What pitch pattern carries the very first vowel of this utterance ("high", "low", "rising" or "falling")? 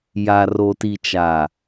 low